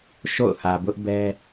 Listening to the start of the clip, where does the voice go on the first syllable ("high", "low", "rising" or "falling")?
falling